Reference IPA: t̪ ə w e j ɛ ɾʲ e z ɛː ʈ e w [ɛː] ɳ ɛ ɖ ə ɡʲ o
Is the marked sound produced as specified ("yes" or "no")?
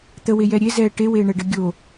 no